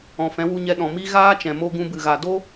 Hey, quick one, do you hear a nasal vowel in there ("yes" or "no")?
yes